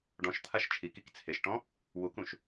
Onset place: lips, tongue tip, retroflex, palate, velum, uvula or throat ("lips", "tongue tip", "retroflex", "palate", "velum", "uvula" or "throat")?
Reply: retroflex